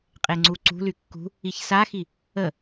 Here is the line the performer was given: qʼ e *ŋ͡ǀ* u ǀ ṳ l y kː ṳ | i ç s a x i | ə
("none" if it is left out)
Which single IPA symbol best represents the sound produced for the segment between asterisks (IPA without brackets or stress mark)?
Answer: ŋ͡ǀ